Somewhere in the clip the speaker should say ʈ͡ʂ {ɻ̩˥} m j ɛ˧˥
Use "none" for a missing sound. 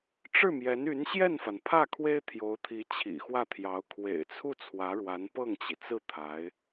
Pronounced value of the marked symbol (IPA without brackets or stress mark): ɻ̩˥˩